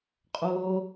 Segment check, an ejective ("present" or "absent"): present